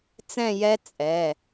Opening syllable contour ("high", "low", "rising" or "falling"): falling